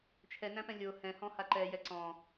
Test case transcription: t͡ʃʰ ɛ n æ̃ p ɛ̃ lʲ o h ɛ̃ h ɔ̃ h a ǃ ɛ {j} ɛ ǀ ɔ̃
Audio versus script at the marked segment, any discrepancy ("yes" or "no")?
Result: no